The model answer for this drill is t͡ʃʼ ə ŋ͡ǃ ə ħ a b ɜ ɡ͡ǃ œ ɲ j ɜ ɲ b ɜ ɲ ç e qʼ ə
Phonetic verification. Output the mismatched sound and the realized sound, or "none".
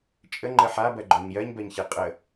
none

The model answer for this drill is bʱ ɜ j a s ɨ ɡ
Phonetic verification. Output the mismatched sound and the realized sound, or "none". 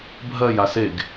ɨ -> e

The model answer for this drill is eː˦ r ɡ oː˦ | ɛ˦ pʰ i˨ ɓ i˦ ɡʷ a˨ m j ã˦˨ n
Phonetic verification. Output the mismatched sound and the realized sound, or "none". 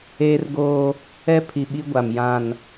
none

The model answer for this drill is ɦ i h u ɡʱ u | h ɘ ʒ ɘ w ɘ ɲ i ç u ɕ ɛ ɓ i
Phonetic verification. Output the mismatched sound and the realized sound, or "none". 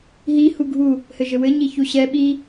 none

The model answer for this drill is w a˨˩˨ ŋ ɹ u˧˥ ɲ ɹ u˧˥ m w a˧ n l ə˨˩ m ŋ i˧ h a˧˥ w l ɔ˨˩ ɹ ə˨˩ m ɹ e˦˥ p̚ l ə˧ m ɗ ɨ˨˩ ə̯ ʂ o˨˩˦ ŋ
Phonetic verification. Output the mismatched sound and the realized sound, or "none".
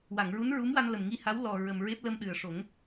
ɲ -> n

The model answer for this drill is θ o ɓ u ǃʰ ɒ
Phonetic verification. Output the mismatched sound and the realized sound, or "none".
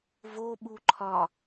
θ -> v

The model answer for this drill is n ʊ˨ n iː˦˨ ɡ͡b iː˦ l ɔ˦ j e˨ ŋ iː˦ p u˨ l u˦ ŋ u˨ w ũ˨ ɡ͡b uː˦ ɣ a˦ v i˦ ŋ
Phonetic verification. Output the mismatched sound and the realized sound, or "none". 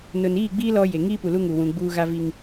none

